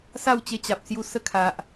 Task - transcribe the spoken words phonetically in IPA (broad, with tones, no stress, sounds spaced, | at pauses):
s a˥˧ w t͡ɕ e˧ t͡ɕ a˨ p̚ s j u˧ s ə˥˧ kʰ a˨ ʔ